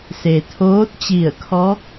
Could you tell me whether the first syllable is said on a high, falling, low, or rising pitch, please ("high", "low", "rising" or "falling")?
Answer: low